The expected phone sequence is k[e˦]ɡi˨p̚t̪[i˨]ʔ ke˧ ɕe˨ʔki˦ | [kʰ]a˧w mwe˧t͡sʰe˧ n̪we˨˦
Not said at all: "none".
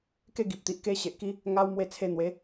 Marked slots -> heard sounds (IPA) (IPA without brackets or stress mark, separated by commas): e˦, i˨, ŋ